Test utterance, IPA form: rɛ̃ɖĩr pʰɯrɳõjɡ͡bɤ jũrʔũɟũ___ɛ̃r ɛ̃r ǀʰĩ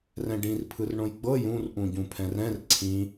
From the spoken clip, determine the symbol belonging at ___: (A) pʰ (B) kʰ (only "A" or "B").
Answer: A